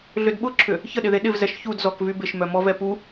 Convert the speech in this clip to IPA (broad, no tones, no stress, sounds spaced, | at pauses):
ɮ ʏ d ɓ ʊ ǁʰ ʏ | ç ə ɗ ɪ ð e ɗ ɪ v z ɛ ʃ ç u d z ɔ k v y b ɪ ʃ m œ m ɔ v ɛ p u